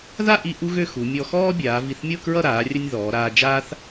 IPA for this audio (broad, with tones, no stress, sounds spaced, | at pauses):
ð a˥˧ ʔ i˧ ʔ u˥ ɣ ø˥˧ x u˩˧ mʲ ɔ˧ x ɔː˥ bʲ aː˩˧ v i˧˩ θ mʲ ɤ˥˧ k ɹ ʌ˥˧ ɾ aː˩˧ rʲ ə˧ nʲ ð ɔː˩˧ ɾ aː˧ d͡ʒ aː˥ θ